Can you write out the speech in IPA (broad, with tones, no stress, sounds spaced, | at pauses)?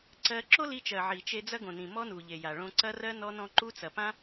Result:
ǀ ɜ˧ ǁ o˦ l i˧ t͡ʃ ɜ˨ ʕ i˨ t͡ʃ e˧ d͡z ɐ˦ ɡ õ˨ n ĩ˨ m ɔ˦ n u˨ ʎ e˨ j a˨ ɭ õ˧ ǀ ɐ˦ r ɜ˦ n ɔ˦ n ɔ̃˦ ǃ u˦ t͡s ɐ˨ p ã˦